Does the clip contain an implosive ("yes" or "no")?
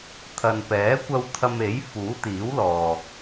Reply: no